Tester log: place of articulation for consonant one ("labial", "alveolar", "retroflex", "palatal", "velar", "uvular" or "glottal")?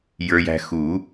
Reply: palatal